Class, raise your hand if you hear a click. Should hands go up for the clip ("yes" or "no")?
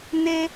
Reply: no